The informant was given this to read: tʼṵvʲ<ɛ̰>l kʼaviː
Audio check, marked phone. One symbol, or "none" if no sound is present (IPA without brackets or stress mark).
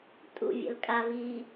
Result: ɛ̰